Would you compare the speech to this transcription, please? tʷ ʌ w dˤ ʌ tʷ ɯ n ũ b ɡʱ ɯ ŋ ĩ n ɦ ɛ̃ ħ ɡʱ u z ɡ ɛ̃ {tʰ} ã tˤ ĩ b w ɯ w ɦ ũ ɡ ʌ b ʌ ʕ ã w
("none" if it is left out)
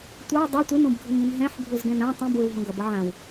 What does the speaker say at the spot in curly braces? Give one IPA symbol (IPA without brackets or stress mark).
n